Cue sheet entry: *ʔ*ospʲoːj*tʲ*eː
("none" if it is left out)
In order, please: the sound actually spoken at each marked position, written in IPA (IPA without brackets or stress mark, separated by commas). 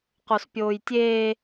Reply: q, tʲ